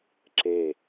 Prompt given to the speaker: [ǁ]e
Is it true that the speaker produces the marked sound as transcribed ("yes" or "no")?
yes